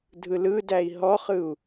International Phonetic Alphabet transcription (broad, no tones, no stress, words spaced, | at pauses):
dʱɯlɯdæi̯ ɦɔχɯu̯